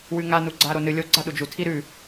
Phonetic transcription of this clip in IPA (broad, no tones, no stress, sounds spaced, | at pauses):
w ʉ ŋ a n u ɡ͡ǀ a ɾ o n ɨ lʲ o ɡ͡ǀ a ɗ u d͡ʒ u tʰ i ɾ ʉ